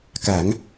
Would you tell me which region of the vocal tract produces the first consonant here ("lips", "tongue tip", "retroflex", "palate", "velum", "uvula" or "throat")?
velum